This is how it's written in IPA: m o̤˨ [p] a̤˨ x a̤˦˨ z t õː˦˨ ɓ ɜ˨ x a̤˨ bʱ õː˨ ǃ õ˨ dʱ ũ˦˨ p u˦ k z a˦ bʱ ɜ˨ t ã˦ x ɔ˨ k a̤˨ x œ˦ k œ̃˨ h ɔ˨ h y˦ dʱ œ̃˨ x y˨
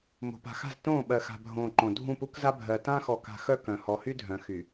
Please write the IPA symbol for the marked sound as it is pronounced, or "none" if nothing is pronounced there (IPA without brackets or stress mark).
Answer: p